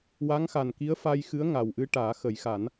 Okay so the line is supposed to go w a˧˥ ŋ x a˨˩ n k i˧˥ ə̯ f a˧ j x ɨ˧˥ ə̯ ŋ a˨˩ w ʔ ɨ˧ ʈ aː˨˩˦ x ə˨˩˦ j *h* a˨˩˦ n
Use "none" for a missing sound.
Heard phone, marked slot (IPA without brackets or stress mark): x